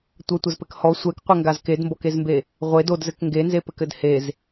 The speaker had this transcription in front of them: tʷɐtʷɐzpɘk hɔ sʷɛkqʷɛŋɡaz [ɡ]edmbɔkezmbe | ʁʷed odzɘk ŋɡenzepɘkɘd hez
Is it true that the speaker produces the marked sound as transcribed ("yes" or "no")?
no